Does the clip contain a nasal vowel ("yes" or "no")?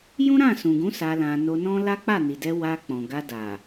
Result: yes